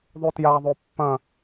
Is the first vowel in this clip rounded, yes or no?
yes